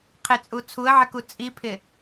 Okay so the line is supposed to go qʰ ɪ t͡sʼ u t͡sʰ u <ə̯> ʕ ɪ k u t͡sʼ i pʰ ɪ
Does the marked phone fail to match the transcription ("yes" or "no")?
no